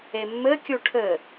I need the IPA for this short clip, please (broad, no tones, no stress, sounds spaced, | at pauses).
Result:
e mː ɘ kʲ u ʈʰ ɘ